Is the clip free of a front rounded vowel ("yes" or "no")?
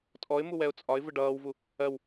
yes